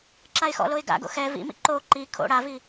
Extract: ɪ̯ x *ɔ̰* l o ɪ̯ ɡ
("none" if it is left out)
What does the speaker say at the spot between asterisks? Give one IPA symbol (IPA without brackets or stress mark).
ɔ̰